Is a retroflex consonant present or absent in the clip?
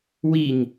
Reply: absent